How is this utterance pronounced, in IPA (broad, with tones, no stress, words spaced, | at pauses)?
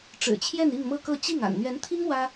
ʈ͡ʂɻ̩˨˩t͡ɕʰjɛ˥˧n i˥˧ŋmɤ˥˧kɤ˥˧ t͡ɕi˥˩ŋ a̰˨˩nn̪ɥɛ˧˥nt̪ʰi˥ŋ wä˥